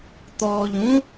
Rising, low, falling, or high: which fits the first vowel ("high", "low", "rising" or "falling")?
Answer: low